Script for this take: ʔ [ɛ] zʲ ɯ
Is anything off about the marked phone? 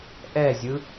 no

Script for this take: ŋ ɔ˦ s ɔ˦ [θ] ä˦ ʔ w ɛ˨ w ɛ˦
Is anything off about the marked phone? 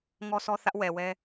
no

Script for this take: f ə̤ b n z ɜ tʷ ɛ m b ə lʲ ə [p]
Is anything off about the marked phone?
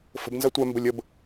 yes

